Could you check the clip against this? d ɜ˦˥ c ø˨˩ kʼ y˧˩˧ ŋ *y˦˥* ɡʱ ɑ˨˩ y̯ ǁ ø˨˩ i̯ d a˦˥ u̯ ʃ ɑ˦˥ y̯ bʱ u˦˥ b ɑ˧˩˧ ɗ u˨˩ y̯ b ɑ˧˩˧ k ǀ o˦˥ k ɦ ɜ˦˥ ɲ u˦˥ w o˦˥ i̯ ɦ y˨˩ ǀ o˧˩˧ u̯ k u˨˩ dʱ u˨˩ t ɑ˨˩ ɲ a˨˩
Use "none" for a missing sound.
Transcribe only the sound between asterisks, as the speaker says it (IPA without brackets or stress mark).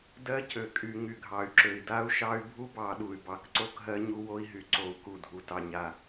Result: y˨˩